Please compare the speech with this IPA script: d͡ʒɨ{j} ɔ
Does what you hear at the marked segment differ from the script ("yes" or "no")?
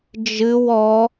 yes